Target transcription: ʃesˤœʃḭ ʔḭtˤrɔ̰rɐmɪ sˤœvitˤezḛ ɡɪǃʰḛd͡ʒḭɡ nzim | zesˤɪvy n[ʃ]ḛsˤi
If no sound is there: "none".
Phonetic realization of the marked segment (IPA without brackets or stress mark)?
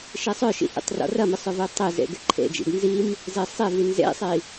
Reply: z